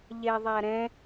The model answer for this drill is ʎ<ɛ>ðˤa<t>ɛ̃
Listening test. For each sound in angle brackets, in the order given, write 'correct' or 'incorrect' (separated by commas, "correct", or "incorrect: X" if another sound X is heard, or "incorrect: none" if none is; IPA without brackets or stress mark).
correct, incorrect: ɾ